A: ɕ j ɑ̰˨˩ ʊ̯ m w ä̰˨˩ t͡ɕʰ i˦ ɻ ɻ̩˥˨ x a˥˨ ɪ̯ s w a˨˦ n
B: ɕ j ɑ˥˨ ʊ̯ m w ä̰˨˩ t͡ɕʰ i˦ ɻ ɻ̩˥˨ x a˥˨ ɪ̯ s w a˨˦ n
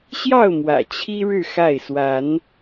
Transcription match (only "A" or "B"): B